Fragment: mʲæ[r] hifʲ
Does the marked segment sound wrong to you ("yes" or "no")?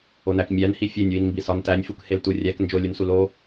yes